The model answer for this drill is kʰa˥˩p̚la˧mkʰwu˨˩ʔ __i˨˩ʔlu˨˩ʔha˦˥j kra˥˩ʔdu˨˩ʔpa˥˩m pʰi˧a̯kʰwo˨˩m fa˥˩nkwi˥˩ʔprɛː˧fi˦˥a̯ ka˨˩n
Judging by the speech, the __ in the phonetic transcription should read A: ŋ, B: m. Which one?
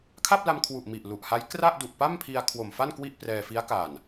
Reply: B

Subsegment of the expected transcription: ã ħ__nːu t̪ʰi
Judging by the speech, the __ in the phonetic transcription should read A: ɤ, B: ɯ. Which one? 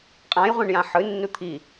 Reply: B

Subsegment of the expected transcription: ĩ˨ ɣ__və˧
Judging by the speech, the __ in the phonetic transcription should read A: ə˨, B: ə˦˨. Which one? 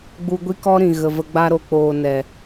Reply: A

